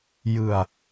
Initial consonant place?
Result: palatal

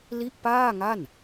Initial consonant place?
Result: alveolar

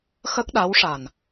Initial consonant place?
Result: velar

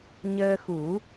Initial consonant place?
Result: palatal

